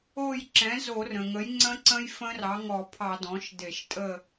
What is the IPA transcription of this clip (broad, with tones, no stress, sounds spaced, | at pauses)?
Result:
o˦˨ j ǁ ɛ̃˩˥ z o˧˩˧ r ə̃˩ ŋ ə˩˥ j ŋ͡ǀ ə̃˦˥ ǀ ə̃˦˥ j f ə̃˦˥ r ɑ˩˥ ŋ ɔ˧˩˧ pʰ ɑ˧˩˧ d ɔ̃˩˥ ʃ d e˧˩˧ ʃ tʼ ə˦˨